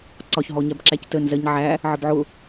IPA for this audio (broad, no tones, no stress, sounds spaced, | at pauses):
ǀ ɒ ç ɦ ɔ ɲ æ b ǁ æ c t ə n z ɜ ɲ ʕ æ | ʕ ə b ʕ ʊ